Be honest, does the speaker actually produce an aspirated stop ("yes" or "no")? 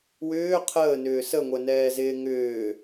yes